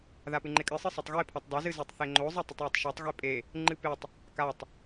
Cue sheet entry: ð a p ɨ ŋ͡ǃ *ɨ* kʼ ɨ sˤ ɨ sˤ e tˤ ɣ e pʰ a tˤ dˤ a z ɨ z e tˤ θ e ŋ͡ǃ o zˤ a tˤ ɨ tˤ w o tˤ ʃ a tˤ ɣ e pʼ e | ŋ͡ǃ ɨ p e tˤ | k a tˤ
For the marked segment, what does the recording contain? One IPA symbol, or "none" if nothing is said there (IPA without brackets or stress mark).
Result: e